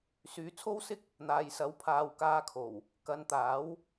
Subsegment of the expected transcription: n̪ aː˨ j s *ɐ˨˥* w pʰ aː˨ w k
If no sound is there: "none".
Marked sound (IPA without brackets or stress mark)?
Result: ɐ˨˥